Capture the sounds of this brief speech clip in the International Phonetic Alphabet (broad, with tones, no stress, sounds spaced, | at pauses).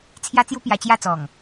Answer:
t͡sʰ j a˦ t͡s j u˦ p j a˧ t͡ɕ j a˥˧ t͡s ɔ˨˩ ŋ